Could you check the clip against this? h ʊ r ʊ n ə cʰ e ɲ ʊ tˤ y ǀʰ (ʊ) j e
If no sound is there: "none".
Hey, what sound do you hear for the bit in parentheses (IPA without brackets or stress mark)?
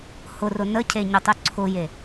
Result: ʊ